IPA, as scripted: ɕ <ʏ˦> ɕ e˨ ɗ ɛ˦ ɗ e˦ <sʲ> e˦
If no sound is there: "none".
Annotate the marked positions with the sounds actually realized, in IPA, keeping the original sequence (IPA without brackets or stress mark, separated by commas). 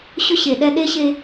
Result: ʏ˦, ɕ